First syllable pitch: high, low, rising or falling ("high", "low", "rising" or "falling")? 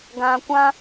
low